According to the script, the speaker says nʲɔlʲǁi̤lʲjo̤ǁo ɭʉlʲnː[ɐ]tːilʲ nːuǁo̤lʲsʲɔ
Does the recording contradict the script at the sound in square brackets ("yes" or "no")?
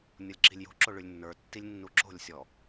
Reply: yes